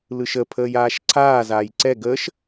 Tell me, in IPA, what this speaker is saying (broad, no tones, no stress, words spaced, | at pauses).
lɯʃəpʰəːj aːʃǀʰaːzaːj ǀɛ ɡəːʃ